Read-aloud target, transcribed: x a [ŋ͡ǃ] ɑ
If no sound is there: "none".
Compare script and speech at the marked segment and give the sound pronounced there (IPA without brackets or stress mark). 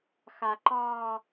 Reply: ǃ